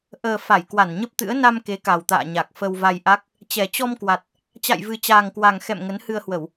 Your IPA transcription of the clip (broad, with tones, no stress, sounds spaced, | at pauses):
ʔ əː˨˩ f a˧˩ j k w a˧˩ n ɲ ə˦˥ p̚ t̪ ɨ̰˧˥ ə̯ n a˧ m k e˨˦ k a˨˩ w t̪ a̰ː˧˨ ɲ a˨˩ k̚ f ə˧ w v a˧ j ʔ a˦˥ k̚ | t͡ɕ ɛ˨˩ t͡ɕ ɔ˧ m k w a˨˩ t̚ | t͡ɕ a̰˧˨ j v ɨ˨˩ t͡ɕ aː˨˩ ŋ k w a˨˩ ŋ x ɛ̰˧˨ m ŋ ə˨˦ n h ɨ˧ ə̯ h w ə˧˩˨ w